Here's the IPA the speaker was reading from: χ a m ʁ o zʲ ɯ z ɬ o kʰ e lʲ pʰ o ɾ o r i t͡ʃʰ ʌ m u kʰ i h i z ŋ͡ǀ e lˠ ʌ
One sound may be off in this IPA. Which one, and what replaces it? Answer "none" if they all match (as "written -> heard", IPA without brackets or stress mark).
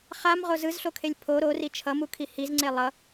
zʲ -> z